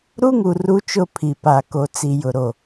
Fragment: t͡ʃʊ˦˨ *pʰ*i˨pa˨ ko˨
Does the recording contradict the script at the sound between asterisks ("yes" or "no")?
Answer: no